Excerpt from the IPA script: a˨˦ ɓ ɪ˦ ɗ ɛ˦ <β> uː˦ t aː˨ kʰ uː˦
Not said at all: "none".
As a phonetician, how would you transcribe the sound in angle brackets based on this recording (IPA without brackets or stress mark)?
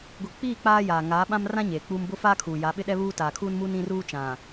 β